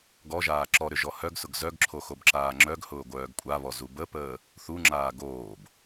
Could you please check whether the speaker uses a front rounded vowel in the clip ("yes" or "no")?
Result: yes